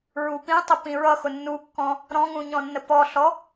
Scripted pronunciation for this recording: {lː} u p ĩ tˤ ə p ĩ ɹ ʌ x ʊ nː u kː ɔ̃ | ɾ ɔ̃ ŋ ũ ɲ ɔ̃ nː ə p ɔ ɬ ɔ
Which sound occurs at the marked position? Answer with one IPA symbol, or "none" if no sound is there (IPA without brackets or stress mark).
ɹ